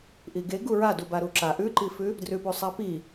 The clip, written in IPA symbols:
ʔiɡe ɡuɹa dubaɾuǁa ʔʉǃifʉ | drʉpusˤapi

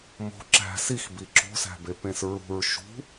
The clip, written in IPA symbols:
mo̤ ǁæ̤ six biǁo̤sæ̤be pẽsɹṳɹ ʃṳ

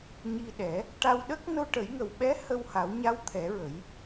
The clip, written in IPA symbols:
ɲi˧ɗɛ˨˩˦ | ʈa˧wɗə˦˥k̚ no˧ʈə˨˩˦jŋə˨˩wɓɛ˧˥ hə˧wha˨˩˦w ɲa˧˥wt̪ʰɛ˨˩˦ɹə˨˩˦j

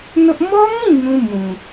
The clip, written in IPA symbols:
nʊ˦ʔ mɔ˦ŋĩ˦˨ ŋũ˦ mũ˨

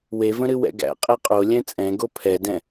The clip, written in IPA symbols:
wevə̃ɾɨ wɛ̰ɡæ̰ qʼɛqʼolʲɛ̃ t͡sʼɛ̃ɡo pʰɛdɛ̃

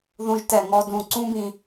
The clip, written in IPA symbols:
ðũ˧ʒtɛ˧˩ŋɔ˧dũ˧˩ ǀũ˥bĩ˧

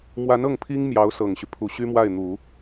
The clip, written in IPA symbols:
mwa˧˥nɤ˥˩ŋpʰi˥ŋ mjɑ˧˥ʊ̯sɤ˨˩ŋɕy˦ pʰu˨˩ ɕy˥mwa˥˩ɪ̯n̪u˨˩˦

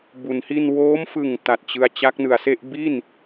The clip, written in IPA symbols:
bu˩˦nhi˥˩n woː˦˥mfɯ˨˩ŋ ta˨˩t̚t͡ɕɯ˧a̯ t͡ɕa˦˥k̚nɯ˨˩a̯se˥˩ʔ bi˥˩n

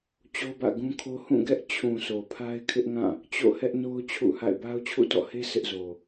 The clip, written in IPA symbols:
t͡ɕo˦bä̰˦˨ɡũ˦kʰo˦ hũ˦˨ɡɛ˦ʔ t͡ɕʰũ˨ so˨pʰa˦ɪ̯kʰɪ˦ʔŋã˦˨ | t͡ɕo̰˦˨hɛ˦ʔno˦ʊ̯ t͡ɕʰṵ˦˨ha̰˦˨ɪ̯ ba˦ʊ̯t͡ɕʰṵ˦˨tɔ̰˦˨he˦ sʰɪ˦ʔzo˨

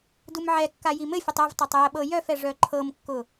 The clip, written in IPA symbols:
dumʕɛkːa jimɘfʲətˤ uvtˤœtˤ jəɓɤ jœfɛ ʐœǃʰɤmkːʊ

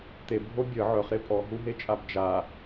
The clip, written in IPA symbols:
t̪ebʱo bʲə ʕœχɾe pʼɔɦuɦet͡ʃʼab d͡ʒa

